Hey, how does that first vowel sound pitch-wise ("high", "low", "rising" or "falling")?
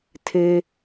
high